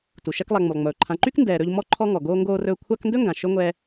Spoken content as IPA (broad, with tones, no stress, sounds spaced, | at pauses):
t u˩ ʃ ɛ˦ k lˠ a˨ ŋ͡m u˩ lˠ ŋ͡m ɵː˩ ǃʰ ã˨ ǃ y˥ k n d ɛː˨ ɾ ɵ˦ ʎ m ɔ˥ ǃʰ ɔ˦ ŋ ɔ˩ ɡ oː˦ ŋ ɡ oː˦ r ɵː˦ kʷʰ a˦ k n d ɵ˥ ŋ ɡ ã˩ ʃ ɵ˥ ŋʷ ɛː˦